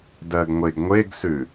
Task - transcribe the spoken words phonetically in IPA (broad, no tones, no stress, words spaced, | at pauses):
dɜɡŋʷeɡŋʷeɡsʉ